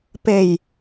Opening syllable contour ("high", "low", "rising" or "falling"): low